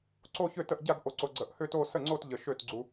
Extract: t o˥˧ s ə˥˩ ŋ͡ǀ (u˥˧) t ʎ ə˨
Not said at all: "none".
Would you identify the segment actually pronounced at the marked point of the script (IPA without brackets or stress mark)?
o˥˧